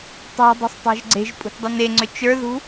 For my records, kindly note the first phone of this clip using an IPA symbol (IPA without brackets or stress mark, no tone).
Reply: tˤ